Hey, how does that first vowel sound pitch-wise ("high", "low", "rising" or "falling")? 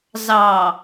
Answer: low